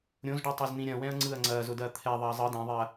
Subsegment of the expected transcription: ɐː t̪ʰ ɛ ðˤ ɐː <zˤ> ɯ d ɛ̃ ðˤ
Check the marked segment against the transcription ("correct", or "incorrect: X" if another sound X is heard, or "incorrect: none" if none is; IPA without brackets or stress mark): correct